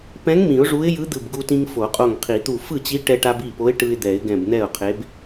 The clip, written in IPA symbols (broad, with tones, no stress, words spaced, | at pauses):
pɛ̃˧˥ŋ mĩ˨˩˦ʊ̯ʐu˧˥ɪ̯ jɯ˧˥d̪ɯ˧˩bɡu˧tĩ˧ŋ fo˨˩˦qʼo˧˩ŋqʰi˨˩˦t̪u˧˩ fɯ˥˩t͡ɕi˧˥ ʈɛ˧ʈa˧b i˥˩po˧˥ɪ̯ ʈɯ˧ɪ̯d̪ɛ˨˩˦ɪ̯ ɡɛ̃˧˩bn̪ɛ˥˩ʊ̯qʰe˧˥b